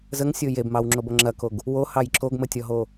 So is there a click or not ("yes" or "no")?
yes